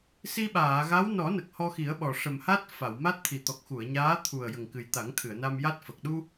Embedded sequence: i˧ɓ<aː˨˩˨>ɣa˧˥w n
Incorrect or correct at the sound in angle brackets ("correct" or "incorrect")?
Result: correct